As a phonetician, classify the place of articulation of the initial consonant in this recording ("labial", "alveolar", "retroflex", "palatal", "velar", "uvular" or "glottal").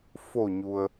labial